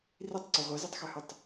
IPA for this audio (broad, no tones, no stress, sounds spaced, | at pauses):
r i tˤ ǀ ɛ ʁʷ ɛ z i tˤ x ø h ʉ tˤ